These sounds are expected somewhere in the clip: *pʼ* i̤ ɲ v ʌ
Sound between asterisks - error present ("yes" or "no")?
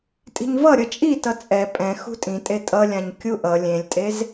yes